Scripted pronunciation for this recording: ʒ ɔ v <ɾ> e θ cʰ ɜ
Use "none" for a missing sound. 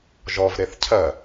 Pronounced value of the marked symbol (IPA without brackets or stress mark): ɾ